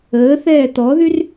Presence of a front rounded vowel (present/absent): present